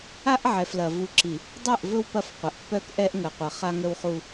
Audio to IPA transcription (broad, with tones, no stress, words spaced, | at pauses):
a˦ʔʕɛ˨flɐ˨ vu˨ǁi˨ | dˤe˦˨ʔvɵ˦w pɐ˦˨fqʷɐ˨ʔpːœ˦k ʔɛ˦ʔŋə˨qʷɐ˨ χa˦ŋə˦wχu˦